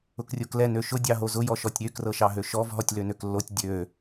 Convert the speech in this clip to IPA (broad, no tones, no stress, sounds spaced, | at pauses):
ʊ k rʲ o k l ɛ n ø ʃ ʊ dʲ ɑ ɦ o z ʊ j ɔ ʃ ɔ tʲ ɾʲ ø k r ɤ ʃ ɑ ɦ ø ʃ ɔ v ɦ ɔ tʲ l ø n ø k lː o tʲ dʲ ø